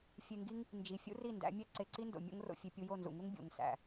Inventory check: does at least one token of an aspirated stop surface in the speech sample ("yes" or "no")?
no